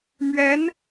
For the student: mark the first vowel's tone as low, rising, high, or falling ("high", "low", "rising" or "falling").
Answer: rising